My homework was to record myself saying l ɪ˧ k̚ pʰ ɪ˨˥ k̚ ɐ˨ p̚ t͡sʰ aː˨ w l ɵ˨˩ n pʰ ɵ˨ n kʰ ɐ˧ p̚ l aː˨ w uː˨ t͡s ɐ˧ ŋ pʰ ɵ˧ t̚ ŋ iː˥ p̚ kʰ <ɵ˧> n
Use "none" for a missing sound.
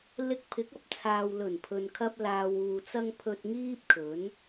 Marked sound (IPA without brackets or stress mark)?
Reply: ɵ˨˥